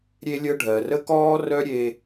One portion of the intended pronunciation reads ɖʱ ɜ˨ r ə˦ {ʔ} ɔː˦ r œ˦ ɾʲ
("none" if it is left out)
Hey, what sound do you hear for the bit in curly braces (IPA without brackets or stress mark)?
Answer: k